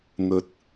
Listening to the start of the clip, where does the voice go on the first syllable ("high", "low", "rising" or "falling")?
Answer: rising